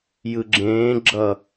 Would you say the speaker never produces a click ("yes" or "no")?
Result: no